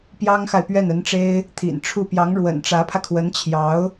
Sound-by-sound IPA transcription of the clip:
pjɑ˥ŋxa˨ɪ̯ pɥɛ˥˩nə˧˥nʈ͡ʂe˥ɪ̯ | t̪ʰḭ˨˩nʈ͡ʂʰu˥˩ pjɑ˧˥ŋɻwə̰˨˩nʈ͡ʂä˧˥pʰä˧ kʰwə˧˥nt͡ɕʰjɑ˧˥ʊ̯

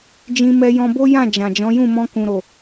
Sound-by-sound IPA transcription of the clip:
d͡ʒĩ˧mɛ˧jɔ̃˧bo˦ jã˦˨ d͡ʒã˨d͡ʒɔ̃˨˦jũ˦˨ mɔ̃˧kũ˨ɾo˨

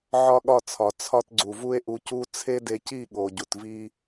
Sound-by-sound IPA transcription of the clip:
ʕɒ˦ɠɒ˦˨t͡sʰɒ˨ t͡sʰɒ˦tɡ͡ǀu˨ vu˦e̯ʔu˧cu˦ t͡sʰe˦de˧ci˦˨ ɠo˨ɟu˨tvi˦

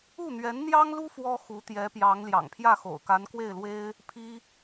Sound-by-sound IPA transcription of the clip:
u˥˩n̪ɥɛ˧˥nn̪jɑ˥ŋlu˥ fwɔ˥xu˧˥t̪jɛ˧˥pjɑ˧˥ŋ ljɑ̰˨˩ŋpʰjä˥˩xo̰˨˩ʊ̯ ka˧˥nkwe˥˩ɪ̯lwe˥ɪ̯ | pʰi˥

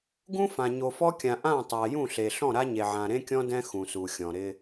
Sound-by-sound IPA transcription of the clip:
ɡũ˦fã˨ ɲo˨fɔ˦kʲã˨ ʔã˦˨tˤa˨ jũ˦˨ɬe˨ ɬɔ̃˦˨ɾa˦ɲe˨ ʕã˨ɾẽ˦kʲɔ̃˦ dɛ̃˦ xũ˨su˨xʲɔ̃˨ ɾɪ˦

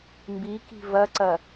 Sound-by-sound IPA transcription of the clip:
mbiki̤ vɐǀɐ

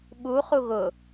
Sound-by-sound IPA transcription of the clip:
ɓu χuɣʊ

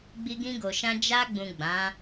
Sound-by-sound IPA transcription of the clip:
ɡ͡bi˧ɡĩ˧ɡo˨ʃã˧ d͡ʒa˧ɡ͡bũ˨ ɡ͡bã˨˦

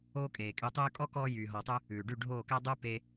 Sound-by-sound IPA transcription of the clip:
oː˦kʼeː˨kʼy˧ tˤyː˧kʼɔ˦kɔː˧ jyː˨ɦɔ˨tˤʉ˧ | ʉː˨ɖy˦˨ɖʱoː˦˨kæ˦ dˤʉ˦ pe˧

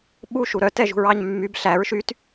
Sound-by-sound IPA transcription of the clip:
ɓuʃu ɾœtɛʒṳɹɑɲ mːyb ɬæɹ ʃyt

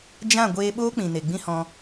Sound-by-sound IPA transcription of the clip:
d͡ʒã˦˨ ɡʷeː˧ɓoː˦k͡pĩ˨ne˨ ɡ͡bĩ˦hɔ̃˧

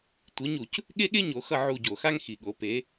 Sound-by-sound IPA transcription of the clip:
tʷi˨˦ɲu˧˩˧c | ɠe˥ɠe˥ɲo˨˦xʌ˦˨ ʕu˦˨ɟo˧˩˧xa˥ŋ xi˨˩ɠo˨˦ pe˨˦

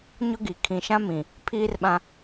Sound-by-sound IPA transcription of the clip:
ɲʊ˦ɡi˨ kʰĩ˨ʃã˦mĩ˨ | pʰiː˦rɓã˦

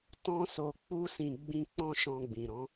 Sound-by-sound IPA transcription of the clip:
tɔ̃˧so˨ k͡pu˧sĩ˨ ɡ͡bĩ˧ k͡pɔ̃˦ʃɔ̃˧ɡ͡bĩ˨ɾɔ̃˨˦

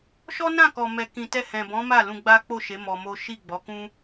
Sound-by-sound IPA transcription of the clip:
ʃɔ˦nã˦˨kɔ˨ mɛ˨kĩ˨ tɛ˧hɛ̃˨bɔ̃˨˦ ma˦˨lũ˧ ɡ͡ba˦k͡po˦˨ʃe˨˦ mɔ˧mo˦ ʃi˦˨ɡ͡bɔ˨˦ kũ˦

